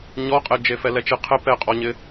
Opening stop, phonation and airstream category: ejective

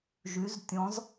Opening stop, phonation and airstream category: plain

